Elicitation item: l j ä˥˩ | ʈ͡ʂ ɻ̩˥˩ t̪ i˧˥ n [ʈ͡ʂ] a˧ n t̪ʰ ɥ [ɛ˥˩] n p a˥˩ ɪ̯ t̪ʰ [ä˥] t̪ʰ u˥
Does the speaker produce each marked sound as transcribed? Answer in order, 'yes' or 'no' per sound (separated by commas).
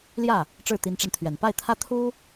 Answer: yes, no, yes